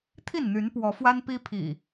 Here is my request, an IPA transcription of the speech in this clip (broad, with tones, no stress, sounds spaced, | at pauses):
t̪ʰ i˥˨ n n̪ y˨˦ n p w ɔ˨˦ f w a˦ n p i˦ pʰ ḭ˨˩